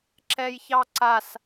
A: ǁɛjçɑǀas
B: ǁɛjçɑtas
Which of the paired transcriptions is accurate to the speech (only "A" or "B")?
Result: A